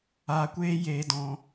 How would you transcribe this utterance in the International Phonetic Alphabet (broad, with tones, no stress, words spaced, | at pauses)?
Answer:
aː˧kʷeː˦jeː˧dɔ̃˧